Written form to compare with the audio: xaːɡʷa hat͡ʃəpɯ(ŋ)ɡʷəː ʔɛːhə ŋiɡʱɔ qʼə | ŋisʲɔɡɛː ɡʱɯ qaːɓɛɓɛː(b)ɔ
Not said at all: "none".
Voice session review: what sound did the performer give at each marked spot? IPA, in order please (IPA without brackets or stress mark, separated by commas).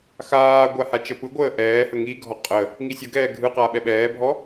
none, bʱ